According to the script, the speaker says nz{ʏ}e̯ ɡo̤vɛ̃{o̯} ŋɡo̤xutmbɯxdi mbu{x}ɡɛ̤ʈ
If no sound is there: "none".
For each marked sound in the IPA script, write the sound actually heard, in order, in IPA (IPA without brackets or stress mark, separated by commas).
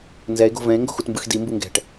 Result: ɛ, e̯, ŋ